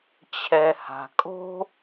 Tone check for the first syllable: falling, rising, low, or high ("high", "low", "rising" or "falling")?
low